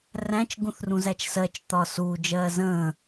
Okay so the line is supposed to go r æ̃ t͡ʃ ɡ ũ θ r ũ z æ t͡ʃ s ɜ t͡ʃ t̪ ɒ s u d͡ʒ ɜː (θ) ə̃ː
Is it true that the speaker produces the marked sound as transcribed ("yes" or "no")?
no